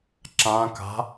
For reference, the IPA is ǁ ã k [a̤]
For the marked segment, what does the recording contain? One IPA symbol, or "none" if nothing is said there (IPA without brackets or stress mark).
a̤